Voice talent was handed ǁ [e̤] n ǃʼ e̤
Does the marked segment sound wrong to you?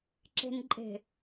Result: no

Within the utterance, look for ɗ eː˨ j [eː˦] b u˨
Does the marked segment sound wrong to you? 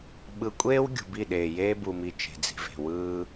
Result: no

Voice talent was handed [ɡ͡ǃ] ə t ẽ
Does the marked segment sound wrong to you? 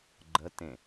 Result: no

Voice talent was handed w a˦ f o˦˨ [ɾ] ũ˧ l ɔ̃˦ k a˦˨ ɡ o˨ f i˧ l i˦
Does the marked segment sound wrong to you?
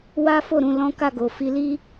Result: no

